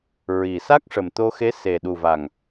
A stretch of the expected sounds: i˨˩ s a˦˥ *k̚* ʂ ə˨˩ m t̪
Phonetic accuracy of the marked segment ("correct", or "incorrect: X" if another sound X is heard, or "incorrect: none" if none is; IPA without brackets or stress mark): correct